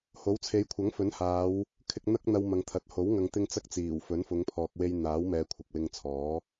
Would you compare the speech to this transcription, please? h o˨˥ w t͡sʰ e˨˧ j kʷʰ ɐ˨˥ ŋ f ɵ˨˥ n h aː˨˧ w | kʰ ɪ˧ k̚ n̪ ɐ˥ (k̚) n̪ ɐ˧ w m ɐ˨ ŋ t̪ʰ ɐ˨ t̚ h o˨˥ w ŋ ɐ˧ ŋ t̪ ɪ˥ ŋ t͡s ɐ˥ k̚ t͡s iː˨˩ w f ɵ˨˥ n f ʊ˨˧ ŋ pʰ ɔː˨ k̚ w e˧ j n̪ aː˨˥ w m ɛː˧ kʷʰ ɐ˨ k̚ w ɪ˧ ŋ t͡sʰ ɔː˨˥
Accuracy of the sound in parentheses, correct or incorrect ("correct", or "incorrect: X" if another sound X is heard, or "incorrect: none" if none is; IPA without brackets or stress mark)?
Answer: correct